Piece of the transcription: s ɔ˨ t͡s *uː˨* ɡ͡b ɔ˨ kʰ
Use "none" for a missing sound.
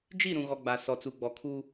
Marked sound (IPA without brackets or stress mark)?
u˨